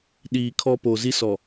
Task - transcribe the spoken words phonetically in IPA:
ɗiː˨ kʰɔ˦ poː˨zi˦ sɔ˨

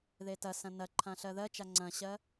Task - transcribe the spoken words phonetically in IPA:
ðetɐsɐ̃ nɐǃʰã ɬɜðɜt͡ʃa ŋ͡ǀɐ̃ɕɜ

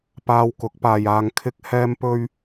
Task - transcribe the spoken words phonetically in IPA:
paː˧wkʊ˨˥k̚paː˨jaː˧ŋ kʰɪ˥k̚hɛː˥mpɵ˥ɥ

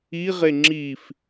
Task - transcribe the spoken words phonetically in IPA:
iʁe ŋ͡ǁif

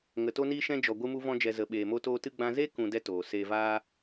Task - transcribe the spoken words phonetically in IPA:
ŋə˨to˧niː˧ ʃɛ̃˧d͡ʒɔ˨ ɡʷɨ˦mu˦vɔ̃˦d͡ʒɛ˧ zə˨ɓeː˨mo˧ toː˧tɨ˧ɡ͡bã˧ ze˦kũ˨ dɛ˦toː˨ seː˨vaː˧

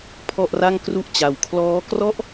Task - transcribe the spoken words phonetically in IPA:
pʰɔ˥˩ʔra˥˩ŋkru˥˩ʔ t͡ɕa˧w kʰlɔː˦˥krɔ˥˩ʔ

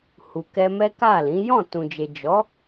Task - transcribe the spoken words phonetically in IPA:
hu˨ kɛ˧mɛ˦ka˦˨lĩ˨˦ jɔ̃˦˨tũ˨d͡ʒe˨ d͡ʒɔ˨˦

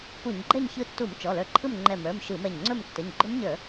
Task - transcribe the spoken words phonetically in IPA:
pu˧˩˧ɲɡ͡ǃɛ˥˨ɲ çɯ˧tːu˧˩˧m t͡ʃɔ˩˧˩lə˞˧ǃʰɯ˥˨m ŋ͡ǃɛ˧˩mə˞˩˧˩m ʃɯ˧˩˧mɛ˧˩ɲŋ͡ǀɵ˥˨m tːə˩˧˩ɲ ɡ͡ǃɵ˦˥mɲə˞˧˩˧

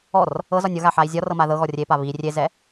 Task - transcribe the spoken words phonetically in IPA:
ɔr | ɤzɒnʲ ɤɣaħai̯ zʲɒrɤma ðɤɣɔ rʲepa βi rʲezɛ

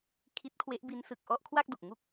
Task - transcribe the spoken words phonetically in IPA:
kʰi˦˥t̚kʰwe˦˥ʔbi˦˥nsɯ˨˩k̚ ʔɔ˥˩ʔkʰwa˥˩k̚do˨˩k̚ ŋu˥˩k̚

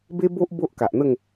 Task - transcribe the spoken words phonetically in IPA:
be˦bo˦ʔ bo˦ʔka˨ʔn̪ə˥˧ŋ

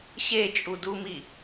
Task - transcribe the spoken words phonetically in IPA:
ɕet͡ʃʼudumi

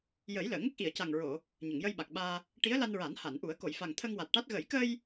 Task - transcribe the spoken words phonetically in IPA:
jə˨˩˦j ləː˨˩˨ŋə˦˥k̚ ʔi˨˩˨ə̯ca˨˩ŋɹo˨˩˨ | ɲə˨˩˨ŋjə˧jɓa˨˩k̚ɓaː˧ | ʈi˧˥ə̯la˧nɹa˨˩˦n ha˨˩˨nʔu˨˩˦ə̯ ko˨˩˨j fa˨˩ŋt̪ʰə˧ŋ wa˨˩t̚ʈa˦˥t̚ ɣə˨˩˦jkə˧j

